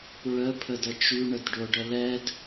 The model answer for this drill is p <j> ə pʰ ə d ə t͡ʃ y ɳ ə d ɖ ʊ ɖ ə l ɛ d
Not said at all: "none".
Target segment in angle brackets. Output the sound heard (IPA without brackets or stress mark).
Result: ɹ